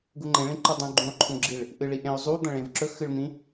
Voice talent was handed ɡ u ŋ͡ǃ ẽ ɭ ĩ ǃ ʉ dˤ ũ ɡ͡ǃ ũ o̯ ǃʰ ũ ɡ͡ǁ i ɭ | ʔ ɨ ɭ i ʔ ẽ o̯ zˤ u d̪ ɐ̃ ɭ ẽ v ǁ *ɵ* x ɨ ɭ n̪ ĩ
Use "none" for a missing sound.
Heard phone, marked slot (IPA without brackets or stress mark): ɵ